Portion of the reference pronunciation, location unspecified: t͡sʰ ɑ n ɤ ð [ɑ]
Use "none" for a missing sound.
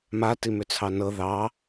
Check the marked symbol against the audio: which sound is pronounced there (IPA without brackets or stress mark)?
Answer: ɑ